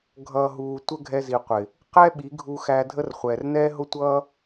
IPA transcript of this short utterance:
ɡʱ ʌː˨ ɦ uː˨ tʷ ə˦ ɡʱ ɛ˧ z i˨ qʷ ɪ˨ | q ɛ˦ ɓ i˨˦ ɡʱ u˧ x æ˧ dʱ ə˦ r χʷ ɛː˨ r n ɛː˦ ɦ ʊ˦ tʷ ʌː˦

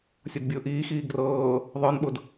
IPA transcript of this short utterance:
sʲ o d bʲ ʊː ʔ iː x iː ɡ r ɤː | ðˤ ə˞ n ɓ ʊ d

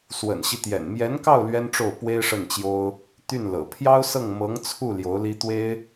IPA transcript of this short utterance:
s w ə̰˨˩ n ɕ i˦ t̪ j ɛ̰˨˩ n m j ɛ˧˥ n k ɑ˥˩ ʊ̯ l ɥ ɛ˥ n ʈ͡ʂ o˥˩ ʊ̯ p w e˥ ɪ̯ ʂ ə˥˩ n t͡ɕ j o˥ ʊ̯ | t̪ y˥˩ n l ɤ̰˨˩ pʰ j ɑ˥ ʊ̯ s ɤ˥˩ ŋ m ɤ˧˥ ŋ t͡sʰ u˥˩ l j o˧˥ ʊ̯ l i˥ t̪ w e˥ ɪ̯

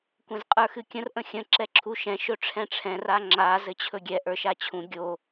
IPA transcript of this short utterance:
kʷ ɛ̃ z qʼ ə˞ x ɨ kʲ ə̃ r ʔ ə̃ xʲ ə̃ ǁ ɛ ǁʰ u ʃ ɛ̃ ʃ ɵ ʈ͡ʂʰ ɛ̃ ʈ͡ʂʰ ɛ̃ r a ŋ͡ǁ a z ɘ t͡ɕʰ ɵ ɡʲ ɛ ʔ ə˞ ʃ a t͡ɕʰ ũ ɡʲ o

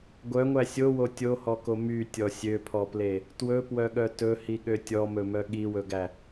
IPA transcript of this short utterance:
ɡʷ œ ŋʷ æ sʲ o w o tʲ o h ɔ k o m y tʲ ɔ sʲ ø pʰ ɔ p l e | t w ɵ p w œ ɠ œ t ɵ h i ɠ ø tʲ ɔ m ɵ m œ ɠ i w ɵ ɡ æ

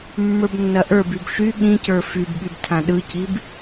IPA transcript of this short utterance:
mː ə˞ b nː ɐ ʔ ə˞ b y b ʃ y ɠ ĩ c ə˞ f y b ɠ y b tʰ ã ɗ ɯ c i b

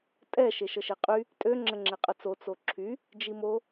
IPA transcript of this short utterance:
tʼ ɛ ʃ e ʃ ə ʃ e qʼ y | tʼ ø ŋ͡ǁ ə ŋ͡ǁ e qʼ ə t͡s o t͡s o ǁʰ y | d͡ʒ i m o

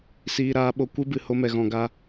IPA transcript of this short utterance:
s iː˧ ɾ aː˨˦ ɓ o˨˦ kʷ ɨ˦ b ɨ˨ h o˧ m ɛ˨ ɣ ɔ̃˨ ɡ a˧

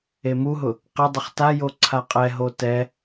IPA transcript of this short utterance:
e m u ɦ ʊ | q ɪ dˤ ɪ χ t a j o ǀʰ a qʼ ɛ ɦ o t ɛ

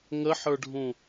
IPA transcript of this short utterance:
ŋ ə ħ ə˞ ɖʱ ũ

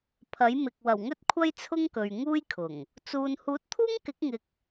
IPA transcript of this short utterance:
pʰ ɐ˨˥ j m ɪ˨ k̚ w ɐ˨˩ w ŋ ɵ˥ t̚ kʷʰ ɐ˥ j t͡sʰ ʊ˥ ŋ k ɵ˨ ɥ ŋ uː˥ j kʰ ʊ˨˩ ŋ | t͡s uː˨ n h uː˨˥ t̚ t̪ʰ uː˥ ŋ k ɪ˨˥ k̚ ŋ ɪ˨ k̚

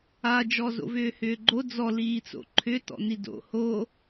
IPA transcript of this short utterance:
a d͡ʒ ɔ z o̰ v ʏː h ʏː ɡ͡ǃ o d͡z ɔ l iː t͡s o̰ ǃʰ ʏ t ɔ̰ n i d o̰ h o

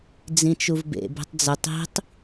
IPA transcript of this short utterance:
d͡z ĩ t͡ʃ u v b ḛ b e̤ tˤ d͡z ə tˤ i̤ tˤ

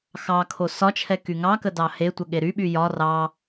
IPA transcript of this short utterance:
x ɑ kʰ o s ɒ t͡ʃʰ ɛ k y ŋ ɑ k ə d ɑ h e tʷ ə ɠ e ɾ y ɓ y j ɒ r ɑ

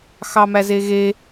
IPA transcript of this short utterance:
x ɑ m æ z e ɣ e

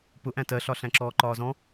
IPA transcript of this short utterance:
p ʊ ʔ æ̃ t ɜ ɬ ɒ ɬ æ̃ ǁ ɔː ǃ ɒː z ɔ̃

